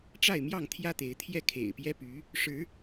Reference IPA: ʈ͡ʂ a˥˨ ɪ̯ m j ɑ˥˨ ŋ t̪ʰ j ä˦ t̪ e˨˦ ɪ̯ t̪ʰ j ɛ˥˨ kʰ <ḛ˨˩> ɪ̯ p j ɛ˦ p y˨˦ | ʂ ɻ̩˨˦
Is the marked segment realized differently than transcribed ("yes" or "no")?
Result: no